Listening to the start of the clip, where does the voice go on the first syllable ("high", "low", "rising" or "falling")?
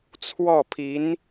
falling